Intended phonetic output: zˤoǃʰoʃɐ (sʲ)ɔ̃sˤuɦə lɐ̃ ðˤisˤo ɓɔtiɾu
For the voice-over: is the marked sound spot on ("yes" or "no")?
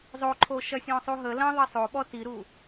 yes